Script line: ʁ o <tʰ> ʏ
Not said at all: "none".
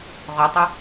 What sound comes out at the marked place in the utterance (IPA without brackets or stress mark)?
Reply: tˤ